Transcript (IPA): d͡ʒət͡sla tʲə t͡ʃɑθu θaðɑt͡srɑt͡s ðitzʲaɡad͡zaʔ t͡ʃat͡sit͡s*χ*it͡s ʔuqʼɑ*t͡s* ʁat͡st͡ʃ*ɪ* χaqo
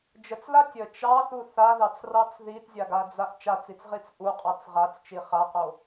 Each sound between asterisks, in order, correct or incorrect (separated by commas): incorrect, correct, incorrect